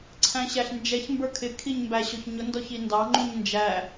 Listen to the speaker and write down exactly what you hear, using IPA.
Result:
ǀʰ æ̃ ɕ æ ɬ n d͡ʒ ɛ ç m b ə˞ kʰ ɪ kʰ i ɲ m b æ ɕ ɔ ç ɲ ʊ n d ɔ ç i n d ɑ ŋ͡ǃ ũ ɲ n d͡ʒ æ

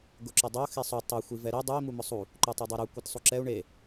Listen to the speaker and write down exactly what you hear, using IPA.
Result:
ɡ ʊ ǁ ʊ dˤ o x i sˤ u tˤ ʊ xʷ i v ɛ ɾ i dˤ u i̯ m u m ʊ sˤ u | ǃ u tˤ u dˤ i ɾ u kʷ ɛ t sˤ u ǁ ɛ u̯ ɳ e

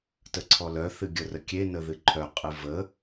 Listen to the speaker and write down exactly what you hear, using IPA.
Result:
t ə ǀʰ ɔ l œ θ ɨ ɡʲ ə r ə kʲ e n ə ð ɨ ǃʰ œ qʼ ɨ v ə

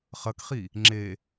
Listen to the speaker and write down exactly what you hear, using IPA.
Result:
χ ɐ k χ i | ŋ͡ǁ e

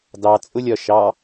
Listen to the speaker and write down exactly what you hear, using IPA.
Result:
d ɑ t͡sʼ ʊ lʲ ɒ ʃ ɑ

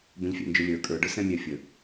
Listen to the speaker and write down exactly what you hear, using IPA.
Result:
b ə̃ ʎ fʲ æ̰ n d͡ʒ ʊ lʲ ə˞ kʼ ə˞ ɖ ə˞ s ɛ̃ mʲ æ fʲ ə

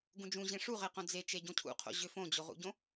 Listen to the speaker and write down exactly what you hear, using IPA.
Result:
ɡ ũ d͡ʒ ũ ʑ ẽ ʂ u ʁ e q õ d͡z e t͡ʃ e ɟ õ cʰ ṵ qʰ o̰ ʑ ʏ f õ d͡ʑ o ʁ ṵ ɟ õ

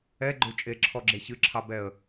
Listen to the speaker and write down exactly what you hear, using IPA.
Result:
ɛ ɡ͡ǃ ø t͡ʃʼ e ǁʰ ɔ ɡ͡ǁ e ç ɨ ǁʰ ɑ b ɛ ə̯

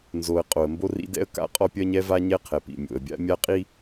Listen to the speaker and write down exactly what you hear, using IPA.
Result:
n z o˨ ə̯ qʼ o˨ ə̯ m b o˦ r ḭ˦ d ɛ̰˦ ə̯ k a̰˦ qʼ ɔ˦ pʲ ɜ˦ ɲ ɛ˦ v a˦ ɲ ɛ˦ qʰ ɛ˨ p ḭ˨ mʲ o̰˨ ə̯ bʲ a̰˦ mʲ a˦ qʼ i˦

